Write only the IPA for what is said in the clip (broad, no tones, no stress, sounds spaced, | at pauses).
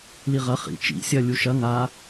l i ʁ ɐ χ ḭ t͡ʃ ḭ sʲ ɐ lʲ u ʃ ɐ ŋ a